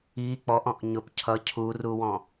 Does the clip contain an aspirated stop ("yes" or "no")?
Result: yes